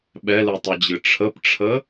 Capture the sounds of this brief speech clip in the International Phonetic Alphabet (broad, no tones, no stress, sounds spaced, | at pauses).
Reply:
ɓ ɛ l ɯ tˤ ɨ d͡ʑ ɨ ʈ͡ʂʰ ə p ʈ͡ʂʰ ə